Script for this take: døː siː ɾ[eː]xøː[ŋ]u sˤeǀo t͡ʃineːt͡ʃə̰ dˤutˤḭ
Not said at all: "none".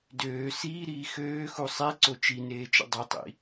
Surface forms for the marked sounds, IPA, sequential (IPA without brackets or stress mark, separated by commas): iː, x